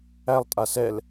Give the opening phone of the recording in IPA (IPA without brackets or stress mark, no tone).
æ